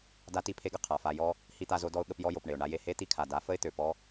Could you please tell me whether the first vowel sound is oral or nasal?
oral